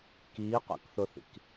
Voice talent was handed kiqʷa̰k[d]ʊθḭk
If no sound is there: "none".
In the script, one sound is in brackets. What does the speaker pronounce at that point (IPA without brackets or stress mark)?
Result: θ